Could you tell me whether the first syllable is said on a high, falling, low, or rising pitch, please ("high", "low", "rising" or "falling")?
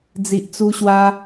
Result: low